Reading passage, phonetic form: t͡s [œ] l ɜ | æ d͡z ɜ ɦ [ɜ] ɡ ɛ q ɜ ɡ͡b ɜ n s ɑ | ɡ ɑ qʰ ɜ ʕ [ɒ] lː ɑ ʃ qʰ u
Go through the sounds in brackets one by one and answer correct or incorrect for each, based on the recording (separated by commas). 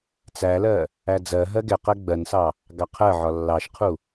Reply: incorrect, correct, correct